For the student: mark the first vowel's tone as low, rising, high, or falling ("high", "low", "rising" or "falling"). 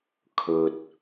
low